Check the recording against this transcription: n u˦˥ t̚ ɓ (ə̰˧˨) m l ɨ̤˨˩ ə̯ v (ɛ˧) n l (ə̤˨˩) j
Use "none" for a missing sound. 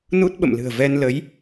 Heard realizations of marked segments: ə̰˧˨, ɛ˧, ə˨˦

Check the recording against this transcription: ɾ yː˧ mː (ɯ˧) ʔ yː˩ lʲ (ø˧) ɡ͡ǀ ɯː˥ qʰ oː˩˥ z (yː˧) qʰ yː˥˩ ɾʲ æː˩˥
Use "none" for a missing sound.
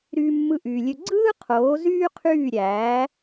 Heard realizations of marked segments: ɯ˧, ø˧, yː˥

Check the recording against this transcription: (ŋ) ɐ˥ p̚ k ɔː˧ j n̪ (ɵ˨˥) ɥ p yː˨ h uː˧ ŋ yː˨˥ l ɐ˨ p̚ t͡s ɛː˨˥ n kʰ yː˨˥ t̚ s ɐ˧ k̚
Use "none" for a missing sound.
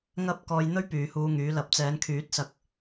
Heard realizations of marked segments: ŋ, ɵ˥

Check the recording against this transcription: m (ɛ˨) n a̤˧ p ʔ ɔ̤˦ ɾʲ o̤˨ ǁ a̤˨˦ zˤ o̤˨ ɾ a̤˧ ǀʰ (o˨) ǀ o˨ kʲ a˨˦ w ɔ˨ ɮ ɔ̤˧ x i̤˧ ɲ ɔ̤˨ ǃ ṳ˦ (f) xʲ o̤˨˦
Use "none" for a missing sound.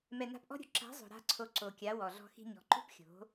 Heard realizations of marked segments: ɛ˨, o˨, p

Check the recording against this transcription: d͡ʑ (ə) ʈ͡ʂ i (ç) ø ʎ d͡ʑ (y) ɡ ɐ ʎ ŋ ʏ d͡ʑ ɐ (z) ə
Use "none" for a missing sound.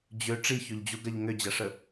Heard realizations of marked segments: ø, ç, u, ʂ

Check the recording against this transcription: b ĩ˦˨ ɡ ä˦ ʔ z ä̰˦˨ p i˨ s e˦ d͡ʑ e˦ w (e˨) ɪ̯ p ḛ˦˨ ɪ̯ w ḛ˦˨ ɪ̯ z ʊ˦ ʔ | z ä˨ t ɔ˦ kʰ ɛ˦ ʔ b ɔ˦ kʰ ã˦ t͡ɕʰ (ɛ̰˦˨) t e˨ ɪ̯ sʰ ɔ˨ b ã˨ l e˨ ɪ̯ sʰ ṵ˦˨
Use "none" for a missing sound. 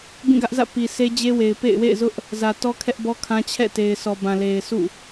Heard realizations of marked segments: e˨, ɛ̰˦˨

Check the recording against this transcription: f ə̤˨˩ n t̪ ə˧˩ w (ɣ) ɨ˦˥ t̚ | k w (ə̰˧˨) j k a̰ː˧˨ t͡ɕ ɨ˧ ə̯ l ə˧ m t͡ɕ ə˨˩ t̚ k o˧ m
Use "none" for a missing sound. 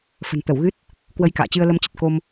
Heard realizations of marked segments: ɣ, ə˧

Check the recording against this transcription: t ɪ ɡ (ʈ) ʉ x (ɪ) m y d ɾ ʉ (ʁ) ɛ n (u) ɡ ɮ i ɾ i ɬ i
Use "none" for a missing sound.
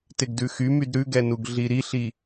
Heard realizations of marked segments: d, y, ɡ, u

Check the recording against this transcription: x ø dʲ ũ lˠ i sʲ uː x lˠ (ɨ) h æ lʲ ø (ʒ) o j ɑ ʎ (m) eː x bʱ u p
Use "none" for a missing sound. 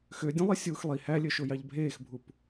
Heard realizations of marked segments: i, ʃ, bʱ

